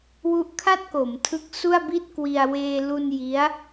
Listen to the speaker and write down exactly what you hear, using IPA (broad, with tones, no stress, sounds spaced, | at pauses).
w u˦˥ ʔ kʰ a˥˩ t̚ k o˩˦ m tʰ ɯ˦˥ k̚ s u˥˩ a̯ b i˥˩ t̚ k w i˧ a̯ w eː˧ l u˧ n j i˦˥ a̯